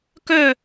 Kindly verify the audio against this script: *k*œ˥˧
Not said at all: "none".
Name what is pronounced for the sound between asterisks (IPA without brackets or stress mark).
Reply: k